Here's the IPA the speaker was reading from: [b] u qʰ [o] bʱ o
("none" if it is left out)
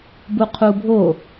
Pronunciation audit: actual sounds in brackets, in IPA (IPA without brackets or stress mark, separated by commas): b, u